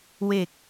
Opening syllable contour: low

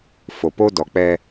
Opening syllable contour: low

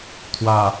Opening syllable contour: low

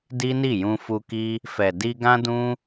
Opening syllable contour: high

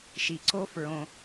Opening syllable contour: low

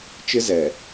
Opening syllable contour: high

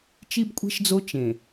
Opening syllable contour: high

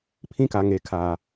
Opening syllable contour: high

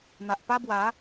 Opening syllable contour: low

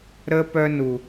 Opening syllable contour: high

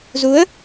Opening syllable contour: rising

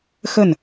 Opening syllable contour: falling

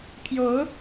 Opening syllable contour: rising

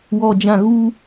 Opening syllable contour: low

